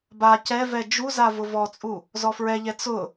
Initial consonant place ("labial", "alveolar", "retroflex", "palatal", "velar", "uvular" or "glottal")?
labial